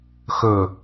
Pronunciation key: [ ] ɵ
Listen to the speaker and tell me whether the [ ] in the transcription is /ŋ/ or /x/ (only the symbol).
x